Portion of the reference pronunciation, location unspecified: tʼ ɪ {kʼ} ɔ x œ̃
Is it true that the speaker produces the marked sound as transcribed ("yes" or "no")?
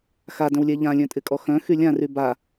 yes